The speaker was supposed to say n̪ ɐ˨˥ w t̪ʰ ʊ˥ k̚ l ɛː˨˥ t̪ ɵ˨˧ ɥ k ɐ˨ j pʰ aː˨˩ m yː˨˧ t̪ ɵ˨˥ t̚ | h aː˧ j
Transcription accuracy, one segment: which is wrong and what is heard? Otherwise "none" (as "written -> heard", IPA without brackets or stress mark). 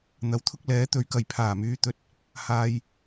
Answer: none